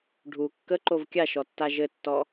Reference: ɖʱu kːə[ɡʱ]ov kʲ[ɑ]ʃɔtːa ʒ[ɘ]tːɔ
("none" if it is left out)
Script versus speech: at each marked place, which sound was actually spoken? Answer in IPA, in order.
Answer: ǃ, a, ɘ

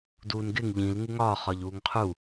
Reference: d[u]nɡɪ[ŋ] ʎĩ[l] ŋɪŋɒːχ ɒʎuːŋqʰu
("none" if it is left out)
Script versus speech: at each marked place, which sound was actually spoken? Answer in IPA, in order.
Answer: uː, ŋ, l

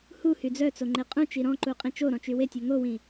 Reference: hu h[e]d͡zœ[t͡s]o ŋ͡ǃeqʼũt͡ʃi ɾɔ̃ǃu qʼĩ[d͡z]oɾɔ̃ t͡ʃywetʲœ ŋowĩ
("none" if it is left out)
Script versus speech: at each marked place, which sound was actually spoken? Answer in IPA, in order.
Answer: y, t͡s, t͡ʃ

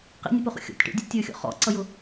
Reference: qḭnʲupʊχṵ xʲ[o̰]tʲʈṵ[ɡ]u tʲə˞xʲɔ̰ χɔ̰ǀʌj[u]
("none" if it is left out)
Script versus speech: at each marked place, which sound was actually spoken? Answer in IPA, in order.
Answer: ɔ̰, dʲ, ʊ

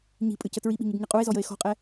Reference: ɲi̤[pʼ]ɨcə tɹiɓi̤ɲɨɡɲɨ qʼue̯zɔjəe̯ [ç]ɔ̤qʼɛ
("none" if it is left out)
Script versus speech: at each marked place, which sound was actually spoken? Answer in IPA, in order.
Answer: pʼ, x

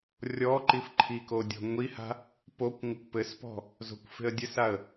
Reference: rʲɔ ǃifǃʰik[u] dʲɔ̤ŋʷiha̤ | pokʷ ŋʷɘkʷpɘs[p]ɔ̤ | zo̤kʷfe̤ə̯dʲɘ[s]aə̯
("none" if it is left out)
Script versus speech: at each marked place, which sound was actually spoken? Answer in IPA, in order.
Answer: o, p, s

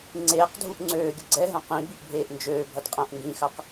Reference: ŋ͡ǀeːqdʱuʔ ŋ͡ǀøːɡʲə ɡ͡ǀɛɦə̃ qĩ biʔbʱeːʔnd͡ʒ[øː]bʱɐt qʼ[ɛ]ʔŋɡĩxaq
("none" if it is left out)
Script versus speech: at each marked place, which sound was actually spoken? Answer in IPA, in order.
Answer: øː, ɛ̃

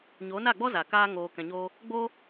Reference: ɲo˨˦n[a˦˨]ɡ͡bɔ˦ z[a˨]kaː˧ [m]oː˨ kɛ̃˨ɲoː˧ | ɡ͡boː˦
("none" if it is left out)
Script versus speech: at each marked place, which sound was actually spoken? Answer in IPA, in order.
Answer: a˦˨, a˨, ŋ

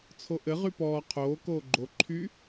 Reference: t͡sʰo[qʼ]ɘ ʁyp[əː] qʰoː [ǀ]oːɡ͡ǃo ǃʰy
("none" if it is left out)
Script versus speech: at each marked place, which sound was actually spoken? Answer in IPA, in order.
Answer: ʔ, ɔː, k

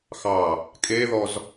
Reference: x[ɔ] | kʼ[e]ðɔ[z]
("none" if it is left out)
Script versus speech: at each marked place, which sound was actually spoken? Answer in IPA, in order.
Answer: ɑ, e, z

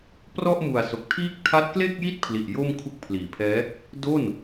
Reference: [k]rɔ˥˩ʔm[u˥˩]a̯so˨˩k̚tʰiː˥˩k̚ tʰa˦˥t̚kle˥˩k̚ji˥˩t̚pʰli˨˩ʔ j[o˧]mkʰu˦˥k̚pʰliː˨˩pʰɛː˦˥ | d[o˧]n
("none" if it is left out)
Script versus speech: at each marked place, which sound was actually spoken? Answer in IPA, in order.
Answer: p, u˨˩, o˥˩, o˥˩

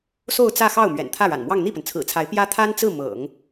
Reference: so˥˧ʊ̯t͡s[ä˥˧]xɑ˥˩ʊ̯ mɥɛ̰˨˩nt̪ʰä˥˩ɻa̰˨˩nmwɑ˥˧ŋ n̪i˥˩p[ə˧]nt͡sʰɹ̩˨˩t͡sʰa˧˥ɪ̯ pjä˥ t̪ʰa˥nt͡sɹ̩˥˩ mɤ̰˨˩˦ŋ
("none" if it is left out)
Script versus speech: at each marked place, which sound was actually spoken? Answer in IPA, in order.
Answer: ä˥˧, ə˩

